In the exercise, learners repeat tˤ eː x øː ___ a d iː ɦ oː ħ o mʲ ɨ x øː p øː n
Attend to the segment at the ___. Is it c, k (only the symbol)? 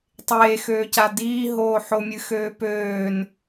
c